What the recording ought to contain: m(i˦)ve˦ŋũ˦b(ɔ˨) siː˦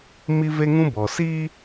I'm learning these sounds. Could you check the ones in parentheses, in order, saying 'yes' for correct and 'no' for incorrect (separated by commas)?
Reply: yes, yes